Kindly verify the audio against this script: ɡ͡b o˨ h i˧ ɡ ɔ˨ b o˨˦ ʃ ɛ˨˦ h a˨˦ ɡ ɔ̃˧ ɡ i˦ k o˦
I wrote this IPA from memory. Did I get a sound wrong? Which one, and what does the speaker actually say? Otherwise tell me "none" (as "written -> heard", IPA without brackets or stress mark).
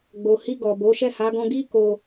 ɛ˨˦ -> ɛ˦˨